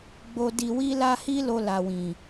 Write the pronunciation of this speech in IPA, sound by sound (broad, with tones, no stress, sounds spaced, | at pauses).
ɡ͡b o˧ d i˧ w i˦ l a˦ h i˦ l o˧ l a˨ w ĩ˨